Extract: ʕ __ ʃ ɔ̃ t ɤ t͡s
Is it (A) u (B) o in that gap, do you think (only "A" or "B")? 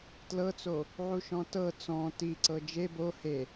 A